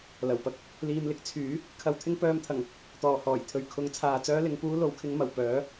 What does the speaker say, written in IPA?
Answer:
l ɐ˨˩ w p ɐ˥ k̚ | l iː˧ m l ɪ˧ k̚ t͡sʰ yː˨˥ | kʰ ɐ˧ w t̪ʰ ɪ˥ ŋ p œː˧ m t̪ʰ ɐ˨˩ ŋ | t̪ ɔː˨˩ h ɔː˨˩ j t̪ʰ ɵ˨ ɥ kʰ ʊ˨˧ ŋ t͡sʰ aː˨ t͡s œː˥ l ɪ˨˧ ŋ p uː˥ l o˨˧ w kʰ ɪ˧ ŋ m ɐ˨˩ w p œː˨˥

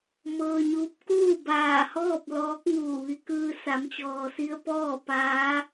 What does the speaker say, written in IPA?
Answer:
m ɤː˧ ɲ uː˧˥ p̚ k uː˥˨ b aː˧˩ h ɔː˥˨ p̚ l ɔː˧˥ k̚ ŋ uː˧˩ ʋ i˧ k ɯː˧ s a˩˧ m t͡ɕ ɔː˩ s i˧ ə̯ p ɔː˥˨ p aː˧˥

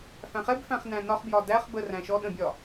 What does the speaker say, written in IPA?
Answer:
f æ̃ χ ɛ b f æ̃ χ n æ̃ n ɒ χ b j ɒ d æ χ b ə r æ̃ ʃ ɔ ɗ ə̃ bʲ ɒ

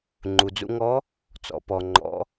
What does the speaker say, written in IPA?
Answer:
ŋ͡ǃ u˩ d͡z ṵ˧ ŋ ɔ˧˥ | t͡s ɔ̰˩˧ p ɔ˩ ŋ͡ǃ ɔ̰˩˧

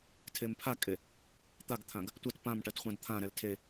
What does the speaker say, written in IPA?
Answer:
tʰ e m pʰ a kʼ e | t̪ a ɡ t̪ʰ ã ɡ | tʷ ɜ t p ã m ʈ ɜ t χʷ ã d t̪ʰ ã ɾ ɛ l tʰ e

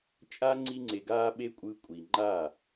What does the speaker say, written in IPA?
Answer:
t͡ʃʼ a˦ ŋ͡ǀ i˦ ŋ͡ǀ e˧ ɡ aː˦ ɓ e˦ kʷʼ ɯ˧ kʷʼ i˨ ŋ͡ǃ a˦˨

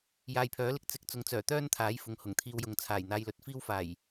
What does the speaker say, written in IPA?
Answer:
j aː˨˧ j pʰ œː˨˥ l ɪ˧ k̚ t͡s ɪ˨˥ k̚ t͡s ʊ˨˥ ŋ t͡s œː˨˩ t̪ œː˥ n t̪ʰ aː˨˥ j f ʊ˨ ŋ h ʊ˨˩ ŋ t̪ʰ iː˧ w j ʊ˨˧ ŋ t͡sʰ aː˨˩ j n̪ aː˧ j l ɵ˨˥ t̚ f iː˥ w f aː˨˩ j

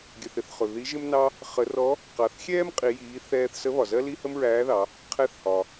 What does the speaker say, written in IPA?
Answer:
ɡʲ ɜ˩ θ ɪ˩˧ θ χ ʊ˩ ð i˧˥ ʒ ɪ˥ m n ɑ˥ | χ ə˧˥ r ɔ˧˥ | q ɑ˩˧ θ xʲ ɛː˥ m qʼ i˩˧ j iː˩˧ θ ɛː˧ θ s ə˧˥ β ɒ˩ z ɜ˥ l i˥ h ə˥ m ɹ æː˧˥ ð ɑ˩˧ | qʰ ɛ˧˥ θ h ɒ˩

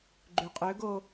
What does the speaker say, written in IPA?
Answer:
ɡ͡ǃ y qʼ ø ɡ o

